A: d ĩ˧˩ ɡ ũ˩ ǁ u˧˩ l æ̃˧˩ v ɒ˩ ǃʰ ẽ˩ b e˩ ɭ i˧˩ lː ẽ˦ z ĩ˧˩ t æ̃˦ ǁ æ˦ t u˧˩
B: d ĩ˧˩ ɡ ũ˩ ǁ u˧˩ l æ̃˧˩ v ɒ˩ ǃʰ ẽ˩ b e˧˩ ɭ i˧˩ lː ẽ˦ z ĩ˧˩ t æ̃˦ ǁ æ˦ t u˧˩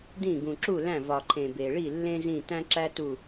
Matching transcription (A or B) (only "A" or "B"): A